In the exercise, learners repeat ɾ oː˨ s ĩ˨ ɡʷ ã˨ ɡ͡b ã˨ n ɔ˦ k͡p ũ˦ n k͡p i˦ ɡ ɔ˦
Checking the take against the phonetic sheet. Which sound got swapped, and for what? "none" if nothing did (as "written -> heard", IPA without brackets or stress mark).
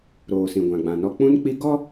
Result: none